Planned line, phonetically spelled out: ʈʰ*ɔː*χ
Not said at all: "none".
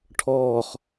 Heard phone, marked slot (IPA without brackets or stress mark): ɔː